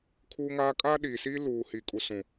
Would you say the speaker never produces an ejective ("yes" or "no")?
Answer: no